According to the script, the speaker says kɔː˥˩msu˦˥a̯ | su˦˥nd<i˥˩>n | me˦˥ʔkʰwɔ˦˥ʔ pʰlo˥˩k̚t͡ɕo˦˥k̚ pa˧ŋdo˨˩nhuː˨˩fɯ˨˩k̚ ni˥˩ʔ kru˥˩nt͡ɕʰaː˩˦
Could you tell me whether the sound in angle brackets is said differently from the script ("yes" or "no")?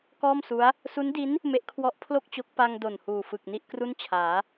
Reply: yes